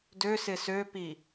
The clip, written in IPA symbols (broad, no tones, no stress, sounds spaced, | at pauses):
d ø s ɪ s ø p i